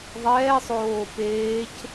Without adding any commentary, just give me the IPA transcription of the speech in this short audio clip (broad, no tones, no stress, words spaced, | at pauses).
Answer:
ðˤɛːsˤoː peːc